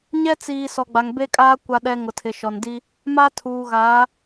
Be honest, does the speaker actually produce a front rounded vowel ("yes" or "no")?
no